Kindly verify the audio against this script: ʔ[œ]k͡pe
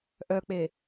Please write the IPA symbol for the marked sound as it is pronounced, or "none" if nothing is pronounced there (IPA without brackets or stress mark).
œ